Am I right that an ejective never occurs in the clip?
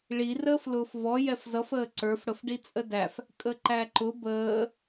no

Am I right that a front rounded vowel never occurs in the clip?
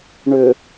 no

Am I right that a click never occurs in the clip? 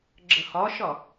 no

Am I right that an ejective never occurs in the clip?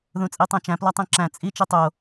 no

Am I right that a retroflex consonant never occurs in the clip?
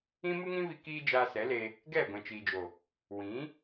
yes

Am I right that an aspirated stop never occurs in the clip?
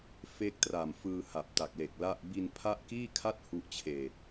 no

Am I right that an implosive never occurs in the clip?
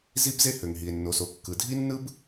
yes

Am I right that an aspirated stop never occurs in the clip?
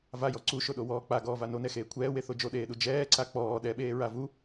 no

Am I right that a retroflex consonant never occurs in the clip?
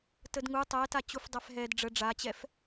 no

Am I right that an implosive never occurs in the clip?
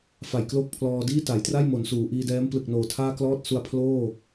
yes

